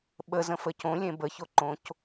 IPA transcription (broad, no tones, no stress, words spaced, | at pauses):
ɓəzə̃fə cõlʲẽ bəçoǃõc